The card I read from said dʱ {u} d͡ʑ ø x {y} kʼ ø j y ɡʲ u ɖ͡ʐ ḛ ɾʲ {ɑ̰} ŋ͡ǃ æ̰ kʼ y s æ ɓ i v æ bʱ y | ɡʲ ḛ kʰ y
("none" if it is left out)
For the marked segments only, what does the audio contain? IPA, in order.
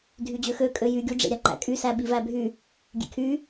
y, ø, ɑ

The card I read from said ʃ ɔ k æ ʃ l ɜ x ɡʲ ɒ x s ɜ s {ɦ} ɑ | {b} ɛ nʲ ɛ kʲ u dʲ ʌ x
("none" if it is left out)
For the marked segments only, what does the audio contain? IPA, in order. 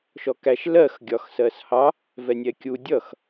h, v

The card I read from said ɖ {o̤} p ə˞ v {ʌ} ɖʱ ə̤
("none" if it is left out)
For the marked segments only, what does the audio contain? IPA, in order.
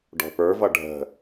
ɔ̤, ʌ

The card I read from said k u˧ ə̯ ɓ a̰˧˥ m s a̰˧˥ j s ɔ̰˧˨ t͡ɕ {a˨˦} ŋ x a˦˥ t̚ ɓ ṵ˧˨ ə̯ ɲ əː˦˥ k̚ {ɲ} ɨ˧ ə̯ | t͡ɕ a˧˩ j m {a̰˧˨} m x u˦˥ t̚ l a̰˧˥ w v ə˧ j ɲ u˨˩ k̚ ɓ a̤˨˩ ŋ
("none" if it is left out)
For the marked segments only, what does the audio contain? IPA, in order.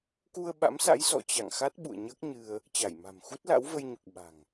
a̰˧˨, ɲ, a̤˨˩

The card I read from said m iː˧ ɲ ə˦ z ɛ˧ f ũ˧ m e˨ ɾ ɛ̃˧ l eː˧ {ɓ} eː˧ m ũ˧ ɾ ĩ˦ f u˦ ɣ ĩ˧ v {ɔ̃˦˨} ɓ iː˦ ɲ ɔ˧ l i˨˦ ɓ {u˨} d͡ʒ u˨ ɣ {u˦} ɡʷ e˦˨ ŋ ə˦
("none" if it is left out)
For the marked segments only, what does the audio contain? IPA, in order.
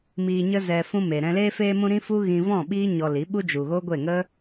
f, ɔ̃˦˨, u˦, o˦

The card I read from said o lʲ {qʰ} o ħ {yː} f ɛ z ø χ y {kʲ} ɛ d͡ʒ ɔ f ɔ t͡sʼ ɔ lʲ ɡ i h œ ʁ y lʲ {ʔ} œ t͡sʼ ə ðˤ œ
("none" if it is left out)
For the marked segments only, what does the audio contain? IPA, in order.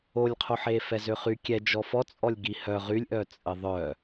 qʰ, eː, kʲ, ʔ

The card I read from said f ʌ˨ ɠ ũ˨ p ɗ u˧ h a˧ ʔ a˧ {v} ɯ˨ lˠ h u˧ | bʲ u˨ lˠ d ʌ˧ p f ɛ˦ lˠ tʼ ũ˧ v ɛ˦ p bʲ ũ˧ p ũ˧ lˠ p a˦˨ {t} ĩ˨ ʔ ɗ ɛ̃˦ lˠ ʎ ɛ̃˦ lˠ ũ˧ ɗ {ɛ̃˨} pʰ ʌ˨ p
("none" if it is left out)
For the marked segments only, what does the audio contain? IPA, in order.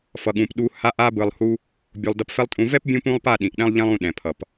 b, ɗ, ɛ̃˨

